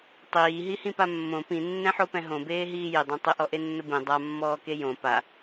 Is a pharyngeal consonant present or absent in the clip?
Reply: present